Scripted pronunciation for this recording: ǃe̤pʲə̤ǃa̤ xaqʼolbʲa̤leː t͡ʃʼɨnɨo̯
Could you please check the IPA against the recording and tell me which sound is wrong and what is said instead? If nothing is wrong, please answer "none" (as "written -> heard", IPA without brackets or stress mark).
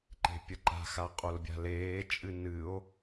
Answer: ə̤ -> ə